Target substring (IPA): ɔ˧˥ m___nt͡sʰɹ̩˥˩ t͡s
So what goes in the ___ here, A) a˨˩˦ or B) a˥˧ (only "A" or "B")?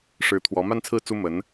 B